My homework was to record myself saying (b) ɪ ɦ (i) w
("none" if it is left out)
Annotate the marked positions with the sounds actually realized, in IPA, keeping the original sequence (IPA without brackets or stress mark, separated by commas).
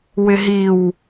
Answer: w, i